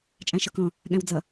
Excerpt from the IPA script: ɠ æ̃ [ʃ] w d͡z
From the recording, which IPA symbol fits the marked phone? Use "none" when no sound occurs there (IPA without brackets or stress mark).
none